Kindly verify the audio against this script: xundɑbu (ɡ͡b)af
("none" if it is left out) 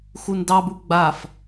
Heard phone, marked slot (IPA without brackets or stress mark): ɡ͡b